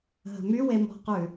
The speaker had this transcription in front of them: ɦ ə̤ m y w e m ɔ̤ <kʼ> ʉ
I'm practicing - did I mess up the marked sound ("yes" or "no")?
yes